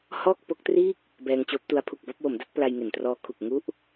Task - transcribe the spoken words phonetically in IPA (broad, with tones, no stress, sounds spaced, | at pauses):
h ɔː˥˩ k̚ p o˦˥ k̚ t r iː˥˩ k̚ | b ɛː˧ ŋ t͡ɕ oː˦˥ p̚ t u˦˥ a̯ pʰ u˨˩ k̚ b a˥˩ p̚ w o˩˦ m d a˦˥ t̚ p l a˧ j ŋ e˨˩ n t r ɔː˧ kʰ u˨˩ k̚ ŋ u˦˥ ʔ